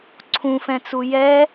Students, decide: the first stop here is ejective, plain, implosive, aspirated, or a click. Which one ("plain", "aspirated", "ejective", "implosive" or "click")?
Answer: click